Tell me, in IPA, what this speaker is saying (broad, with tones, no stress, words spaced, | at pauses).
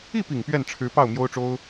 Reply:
i˥˩pi˨˩ŋ pɥɛ˥˩nʈ͡ʂʰɻ̩˧˥pɑ˥˩ʊ̯ mjo˥ʊ̯ʈ͡ʂo˥ʊ̯